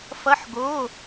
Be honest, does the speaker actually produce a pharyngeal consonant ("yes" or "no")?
yes